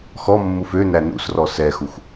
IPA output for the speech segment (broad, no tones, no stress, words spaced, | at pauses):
xɔmːuf ø nænṵsrɔ sɛxuxʷ